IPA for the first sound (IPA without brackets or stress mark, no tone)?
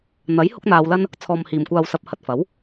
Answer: n̪